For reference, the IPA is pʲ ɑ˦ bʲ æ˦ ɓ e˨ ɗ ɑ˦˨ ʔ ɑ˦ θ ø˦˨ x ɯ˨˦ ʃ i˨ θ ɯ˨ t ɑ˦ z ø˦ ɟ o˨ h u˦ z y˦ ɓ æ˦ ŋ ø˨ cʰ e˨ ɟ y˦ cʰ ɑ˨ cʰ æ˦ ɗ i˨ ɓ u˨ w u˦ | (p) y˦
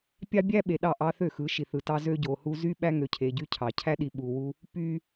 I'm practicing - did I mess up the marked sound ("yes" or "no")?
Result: no